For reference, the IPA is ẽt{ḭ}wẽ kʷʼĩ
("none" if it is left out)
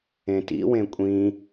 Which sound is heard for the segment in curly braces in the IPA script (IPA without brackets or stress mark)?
ḭ